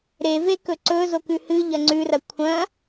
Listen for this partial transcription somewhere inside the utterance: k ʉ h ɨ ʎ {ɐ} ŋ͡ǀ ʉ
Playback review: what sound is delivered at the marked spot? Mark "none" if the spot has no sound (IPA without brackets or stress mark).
ɐ